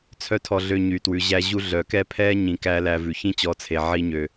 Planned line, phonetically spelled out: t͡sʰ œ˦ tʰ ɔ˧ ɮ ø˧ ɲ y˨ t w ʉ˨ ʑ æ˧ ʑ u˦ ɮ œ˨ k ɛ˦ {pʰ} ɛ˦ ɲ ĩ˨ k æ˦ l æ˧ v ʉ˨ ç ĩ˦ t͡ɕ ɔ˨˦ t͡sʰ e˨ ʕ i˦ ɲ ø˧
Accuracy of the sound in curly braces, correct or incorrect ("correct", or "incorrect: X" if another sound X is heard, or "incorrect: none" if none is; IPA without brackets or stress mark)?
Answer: correct